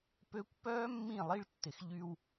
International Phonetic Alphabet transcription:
p ø˦ kʷ p œː˦ mː ĩ˦˨ lˠ i˦ ɭ tː ɪ˨ x ʎ y˦ w

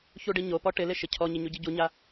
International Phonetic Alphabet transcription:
ç u ɖ i ɲ o p ɔ ʈ ɪ l ɪ ʃ ɪ cʰ ɔ ɲ ɪ ɲ u ɟ i ɟ u ɲ a

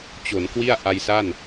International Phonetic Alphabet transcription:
t͡ɕ o˩˦ n k w i˥˩ a̯ ʔ a˧ j s a˥˩ n

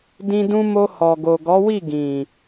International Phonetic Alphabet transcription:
d ĩ˧ d ũ˧ m o˧ h ɔ˨ ɡ o˨ ɡ ɔ˨˦ w i˦˨ ɡ ĩ˨

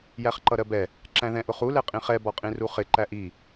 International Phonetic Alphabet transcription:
j æ χ ǃ ʌ ɾ ɜ b ɛ | ǁ æ̃ ð ɛ̃ ʔ ʊ χ u l ɛ qʼ ĩ χ ɛ b ɔ qʼ ĩ r u χ ɪ ǃ æ ʔ i

